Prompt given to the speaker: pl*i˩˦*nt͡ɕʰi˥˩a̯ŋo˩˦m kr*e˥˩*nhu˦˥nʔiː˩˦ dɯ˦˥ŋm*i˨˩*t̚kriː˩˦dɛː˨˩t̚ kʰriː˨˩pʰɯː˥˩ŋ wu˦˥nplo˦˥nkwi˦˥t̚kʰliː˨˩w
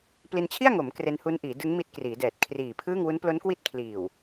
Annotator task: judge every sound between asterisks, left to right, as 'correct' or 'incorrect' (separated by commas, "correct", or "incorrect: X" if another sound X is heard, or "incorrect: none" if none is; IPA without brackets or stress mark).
incorrect: i˧, incorrect: e˧, incorrect: i˦˥